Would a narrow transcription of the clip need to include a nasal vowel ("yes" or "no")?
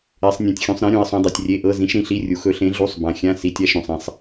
yes